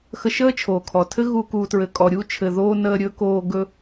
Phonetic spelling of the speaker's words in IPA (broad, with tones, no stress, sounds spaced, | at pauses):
x ə˧ ʃ əː˥ t͡ʃʰ oː˩ kʰ ɔ˩ tʰ ɘ˥ ɣ u˧ k uː˧ t ɹ ɘ˧ kʼ ɔ˧ ɾʲ u˥ t͡ʃʰ ɘ˧ ð oː˥ n əː˥ ɾʲ ɵ˥ k oː˥ ɡ ɵ˥